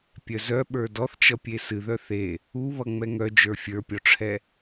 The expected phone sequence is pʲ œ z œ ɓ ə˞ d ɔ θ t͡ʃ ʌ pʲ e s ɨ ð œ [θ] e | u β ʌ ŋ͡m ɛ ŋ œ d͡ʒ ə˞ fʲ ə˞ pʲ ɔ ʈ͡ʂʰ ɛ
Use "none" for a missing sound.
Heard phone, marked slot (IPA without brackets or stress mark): θ